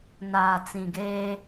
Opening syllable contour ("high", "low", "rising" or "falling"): low